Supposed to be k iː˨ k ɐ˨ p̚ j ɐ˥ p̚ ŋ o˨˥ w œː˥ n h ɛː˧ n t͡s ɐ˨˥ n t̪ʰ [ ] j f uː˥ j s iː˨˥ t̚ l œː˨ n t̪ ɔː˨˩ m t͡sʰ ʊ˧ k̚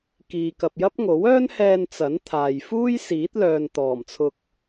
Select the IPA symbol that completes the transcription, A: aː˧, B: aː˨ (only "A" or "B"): B